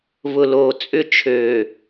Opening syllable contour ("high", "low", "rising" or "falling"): low